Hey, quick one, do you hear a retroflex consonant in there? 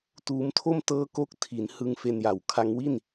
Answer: no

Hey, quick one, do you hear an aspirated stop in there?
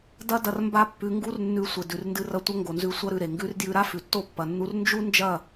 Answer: no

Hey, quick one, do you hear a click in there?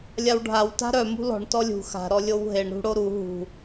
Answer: no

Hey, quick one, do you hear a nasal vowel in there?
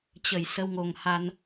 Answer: no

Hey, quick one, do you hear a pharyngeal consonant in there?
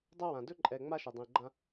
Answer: no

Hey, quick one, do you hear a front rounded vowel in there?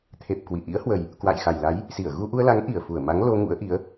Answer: no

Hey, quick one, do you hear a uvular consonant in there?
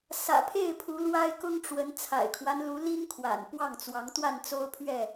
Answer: no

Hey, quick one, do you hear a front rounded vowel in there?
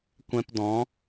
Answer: no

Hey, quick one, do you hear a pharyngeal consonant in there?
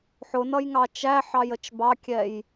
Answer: yes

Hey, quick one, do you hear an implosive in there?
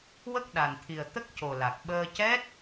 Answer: yes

